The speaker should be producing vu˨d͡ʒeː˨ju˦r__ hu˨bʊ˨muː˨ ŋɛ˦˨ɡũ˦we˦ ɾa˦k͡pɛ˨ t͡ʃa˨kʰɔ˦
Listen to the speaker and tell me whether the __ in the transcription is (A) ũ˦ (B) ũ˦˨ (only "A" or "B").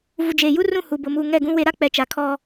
B